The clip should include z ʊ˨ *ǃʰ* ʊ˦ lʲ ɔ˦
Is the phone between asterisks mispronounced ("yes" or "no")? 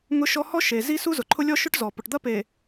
no